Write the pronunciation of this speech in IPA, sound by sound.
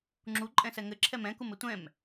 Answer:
ŋ͡ǁ u ǃʼ ɛ̃ s ɛ ŋ ɘ ǁʰ ɛ m ɛ̃ k u m ɘ tʷ ɛ̃ m

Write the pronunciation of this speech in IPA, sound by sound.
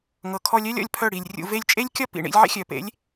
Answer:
ŋ ɤ˨ kʰ ɔ˧ lʲ œ˦ lʲ ɔ̰˧ lʲ pʰ œ˦˨ ɽ i˨ lʲ rʲ ṵ˧ v e˧ lʲ t͡ʃʼ e˦ lʲ kʲ ɒ˦ p ḭ˨ ɳ ḭ˧ lʲ ʕ ḛ˦ xʲ œ˨ p ḛ˨˦ lʲ

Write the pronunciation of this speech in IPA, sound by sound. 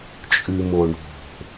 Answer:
t͡ʃʼ ʉ m o ɳ o̤

